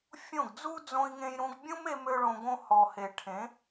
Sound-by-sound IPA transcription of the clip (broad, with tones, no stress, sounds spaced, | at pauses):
fʲ õ˦˨ ɡ d͡z u˦ d͡z õ˧ i̯ ŋ ẽ˧ j ɾ ũ˧ ɡ bʲ ũ˦ m e˦ m ø˦ ɭ õ˧ ɡ õ˦ h ɔ˨ h e˨ ʈʰ ẽ˨˦